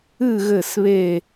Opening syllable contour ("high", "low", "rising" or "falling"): falling